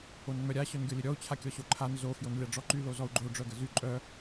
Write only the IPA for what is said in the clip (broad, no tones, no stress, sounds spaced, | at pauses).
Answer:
o n ŋ͡m œ ɾʲ a ɕ œ n ɡʲ ɔ lʲ ə ɾʲ ɔ u̯ t͡ɕʰ a kʲ ɔ ɕ o ǃʰ a n z o f j o n lʲ a ɖ͡ʐ ɔ ǃ y l o z ɔ u̯ ɡ͡ǃ o ɖ͡ʐ œ ɡ ə z y ǃʼ œ